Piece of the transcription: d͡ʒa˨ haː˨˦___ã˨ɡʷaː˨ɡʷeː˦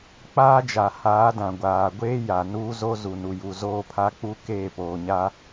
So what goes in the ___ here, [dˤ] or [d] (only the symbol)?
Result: d